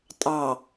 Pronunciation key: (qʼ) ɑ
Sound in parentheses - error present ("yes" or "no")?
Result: yes